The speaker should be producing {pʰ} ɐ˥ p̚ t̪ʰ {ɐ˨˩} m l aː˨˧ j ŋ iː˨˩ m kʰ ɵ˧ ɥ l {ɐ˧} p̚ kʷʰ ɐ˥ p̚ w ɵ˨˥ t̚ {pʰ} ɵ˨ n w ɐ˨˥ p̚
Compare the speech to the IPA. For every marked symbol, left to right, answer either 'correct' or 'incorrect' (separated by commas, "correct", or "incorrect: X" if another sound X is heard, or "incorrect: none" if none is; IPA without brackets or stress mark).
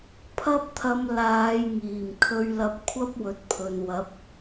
correct, incorrect: ɐ˧, correct, correct